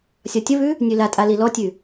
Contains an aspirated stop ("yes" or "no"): no